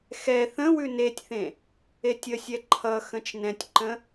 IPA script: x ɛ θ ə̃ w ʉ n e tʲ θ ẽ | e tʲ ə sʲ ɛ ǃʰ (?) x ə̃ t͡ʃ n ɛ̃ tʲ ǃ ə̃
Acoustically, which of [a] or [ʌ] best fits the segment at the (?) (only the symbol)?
ʌ